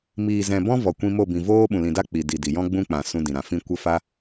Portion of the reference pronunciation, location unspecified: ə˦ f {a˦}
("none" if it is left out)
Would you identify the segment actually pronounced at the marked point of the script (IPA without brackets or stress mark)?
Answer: a˦